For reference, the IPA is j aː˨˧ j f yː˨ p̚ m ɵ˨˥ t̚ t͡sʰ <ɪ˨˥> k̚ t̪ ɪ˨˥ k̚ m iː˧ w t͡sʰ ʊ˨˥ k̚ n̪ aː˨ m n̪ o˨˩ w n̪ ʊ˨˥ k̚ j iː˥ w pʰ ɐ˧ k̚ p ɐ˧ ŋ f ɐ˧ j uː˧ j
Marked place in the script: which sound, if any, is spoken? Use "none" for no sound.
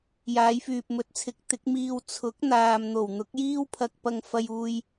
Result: ɪ˨˥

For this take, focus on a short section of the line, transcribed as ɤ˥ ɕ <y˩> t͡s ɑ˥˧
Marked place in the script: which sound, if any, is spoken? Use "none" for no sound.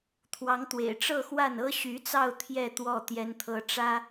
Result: y˧˥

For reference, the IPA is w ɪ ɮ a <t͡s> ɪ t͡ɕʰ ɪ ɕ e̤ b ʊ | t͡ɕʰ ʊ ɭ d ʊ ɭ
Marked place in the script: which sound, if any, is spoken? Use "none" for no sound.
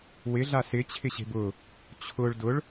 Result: s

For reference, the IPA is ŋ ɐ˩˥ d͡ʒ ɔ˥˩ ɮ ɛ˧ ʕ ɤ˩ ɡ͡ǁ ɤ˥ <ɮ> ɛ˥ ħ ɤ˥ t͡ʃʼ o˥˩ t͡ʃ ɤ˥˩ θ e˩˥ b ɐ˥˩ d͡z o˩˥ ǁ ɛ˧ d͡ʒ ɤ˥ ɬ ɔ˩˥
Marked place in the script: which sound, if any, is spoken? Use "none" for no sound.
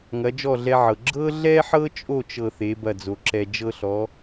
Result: ɮ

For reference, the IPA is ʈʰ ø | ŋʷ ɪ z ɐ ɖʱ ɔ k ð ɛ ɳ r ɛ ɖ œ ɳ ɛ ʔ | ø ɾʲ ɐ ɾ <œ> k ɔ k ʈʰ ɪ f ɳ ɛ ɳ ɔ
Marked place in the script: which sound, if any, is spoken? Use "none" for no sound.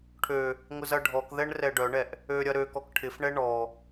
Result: ø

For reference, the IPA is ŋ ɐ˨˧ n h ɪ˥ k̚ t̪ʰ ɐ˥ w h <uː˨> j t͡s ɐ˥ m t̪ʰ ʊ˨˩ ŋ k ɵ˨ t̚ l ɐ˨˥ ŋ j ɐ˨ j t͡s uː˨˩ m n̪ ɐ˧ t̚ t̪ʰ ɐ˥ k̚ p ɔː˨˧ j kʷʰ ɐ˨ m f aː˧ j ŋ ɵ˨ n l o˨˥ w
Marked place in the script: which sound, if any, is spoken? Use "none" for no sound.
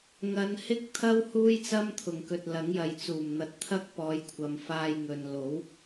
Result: uː˥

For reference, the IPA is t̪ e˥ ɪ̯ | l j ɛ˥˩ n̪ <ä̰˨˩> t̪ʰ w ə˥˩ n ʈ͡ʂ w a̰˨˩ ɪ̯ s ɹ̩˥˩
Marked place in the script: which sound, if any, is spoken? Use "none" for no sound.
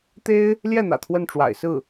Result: ä̰˨˩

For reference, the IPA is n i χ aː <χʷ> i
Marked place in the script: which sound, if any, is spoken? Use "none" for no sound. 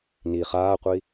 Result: qʷ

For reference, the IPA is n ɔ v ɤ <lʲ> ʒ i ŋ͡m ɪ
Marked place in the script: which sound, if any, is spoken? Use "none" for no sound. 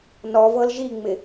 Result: l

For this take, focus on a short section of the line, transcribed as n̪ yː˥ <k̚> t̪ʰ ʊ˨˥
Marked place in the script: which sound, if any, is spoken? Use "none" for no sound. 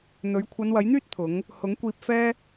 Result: t̚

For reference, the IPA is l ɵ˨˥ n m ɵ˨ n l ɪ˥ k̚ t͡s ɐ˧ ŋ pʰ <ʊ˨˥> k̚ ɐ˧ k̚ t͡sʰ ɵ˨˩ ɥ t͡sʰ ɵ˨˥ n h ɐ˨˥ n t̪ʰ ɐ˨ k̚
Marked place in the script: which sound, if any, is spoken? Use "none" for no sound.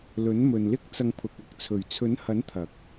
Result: ʊ˨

